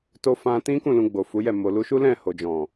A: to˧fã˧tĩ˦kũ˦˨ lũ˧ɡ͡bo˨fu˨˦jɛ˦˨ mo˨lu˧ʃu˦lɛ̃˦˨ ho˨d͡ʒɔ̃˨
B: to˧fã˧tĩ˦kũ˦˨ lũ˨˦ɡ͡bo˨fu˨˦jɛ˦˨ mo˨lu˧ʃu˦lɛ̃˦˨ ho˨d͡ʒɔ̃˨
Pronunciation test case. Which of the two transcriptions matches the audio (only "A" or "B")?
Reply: A